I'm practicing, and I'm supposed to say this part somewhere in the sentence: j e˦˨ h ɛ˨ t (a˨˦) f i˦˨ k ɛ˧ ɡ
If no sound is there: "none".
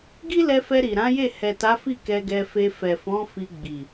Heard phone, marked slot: a˨˦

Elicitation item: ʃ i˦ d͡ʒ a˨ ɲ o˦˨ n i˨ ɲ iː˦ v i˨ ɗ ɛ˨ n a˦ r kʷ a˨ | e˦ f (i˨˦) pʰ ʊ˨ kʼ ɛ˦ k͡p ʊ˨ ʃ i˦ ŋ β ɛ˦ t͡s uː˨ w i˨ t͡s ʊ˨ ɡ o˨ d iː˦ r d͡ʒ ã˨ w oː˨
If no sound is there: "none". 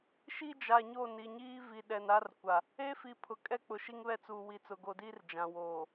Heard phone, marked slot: i˨˦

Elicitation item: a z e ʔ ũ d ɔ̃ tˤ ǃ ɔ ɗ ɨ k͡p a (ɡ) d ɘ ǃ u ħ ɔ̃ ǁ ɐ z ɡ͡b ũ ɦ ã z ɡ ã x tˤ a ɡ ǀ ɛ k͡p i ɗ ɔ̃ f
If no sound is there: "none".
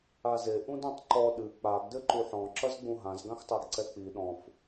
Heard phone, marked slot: ɡ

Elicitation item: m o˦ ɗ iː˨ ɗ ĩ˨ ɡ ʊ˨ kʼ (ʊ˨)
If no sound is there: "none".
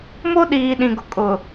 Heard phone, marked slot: ʊ˨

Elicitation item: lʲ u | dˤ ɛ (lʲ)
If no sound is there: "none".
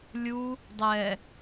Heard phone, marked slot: none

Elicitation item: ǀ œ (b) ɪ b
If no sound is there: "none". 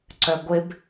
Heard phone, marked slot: ɡʷ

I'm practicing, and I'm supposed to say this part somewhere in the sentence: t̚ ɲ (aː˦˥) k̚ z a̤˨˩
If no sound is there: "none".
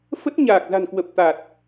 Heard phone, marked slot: aː˨˩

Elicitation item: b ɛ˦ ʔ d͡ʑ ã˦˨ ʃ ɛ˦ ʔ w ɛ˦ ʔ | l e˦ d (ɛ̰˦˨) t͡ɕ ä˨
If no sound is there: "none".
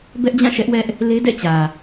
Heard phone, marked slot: ɛ̰˦˨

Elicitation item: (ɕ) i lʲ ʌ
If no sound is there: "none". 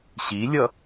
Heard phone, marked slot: ɕ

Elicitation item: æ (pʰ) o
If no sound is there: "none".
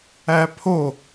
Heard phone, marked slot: pʰ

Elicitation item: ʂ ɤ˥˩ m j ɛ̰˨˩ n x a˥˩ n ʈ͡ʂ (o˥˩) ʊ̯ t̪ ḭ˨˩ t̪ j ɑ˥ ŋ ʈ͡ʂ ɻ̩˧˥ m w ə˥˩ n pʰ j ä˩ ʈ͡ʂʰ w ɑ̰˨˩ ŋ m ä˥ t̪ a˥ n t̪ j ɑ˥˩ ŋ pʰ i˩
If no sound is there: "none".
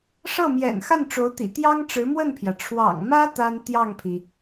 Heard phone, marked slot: o˧˥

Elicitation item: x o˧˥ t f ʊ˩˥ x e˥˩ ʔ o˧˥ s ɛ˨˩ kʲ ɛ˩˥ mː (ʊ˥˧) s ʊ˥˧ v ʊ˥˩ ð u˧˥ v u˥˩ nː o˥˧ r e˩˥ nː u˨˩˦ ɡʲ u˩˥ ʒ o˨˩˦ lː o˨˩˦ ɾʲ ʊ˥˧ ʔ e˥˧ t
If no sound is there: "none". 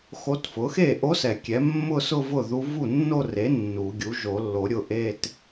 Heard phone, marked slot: ʊ˥˧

